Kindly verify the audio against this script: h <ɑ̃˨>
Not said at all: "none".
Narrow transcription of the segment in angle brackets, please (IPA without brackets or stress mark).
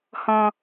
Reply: ɔ̃˨